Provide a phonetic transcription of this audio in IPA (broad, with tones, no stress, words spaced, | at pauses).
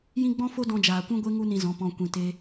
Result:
jĩ˦ɡ͡bɔ̃˦ fo˦dɔ̃˧d͡ʒaː˨ kʷũ˧ɡʷe˧ ŋu˦nĩ˧ zɔ̃˨˦pɔ̃˧ kʷĩ˨te˧